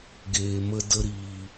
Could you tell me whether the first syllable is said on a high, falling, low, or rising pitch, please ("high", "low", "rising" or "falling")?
low